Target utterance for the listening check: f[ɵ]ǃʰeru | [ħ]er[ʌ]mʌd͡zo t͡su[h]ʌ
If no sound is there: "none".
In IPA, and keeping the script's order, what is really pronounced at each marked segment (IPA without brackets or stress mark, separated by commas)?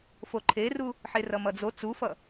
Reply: o, ħ, ʌ, f